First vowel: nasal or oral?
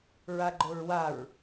oral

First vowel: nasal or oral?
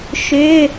oral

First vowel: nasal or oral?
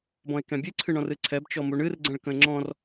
nasal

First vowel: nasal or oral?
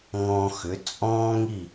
nasal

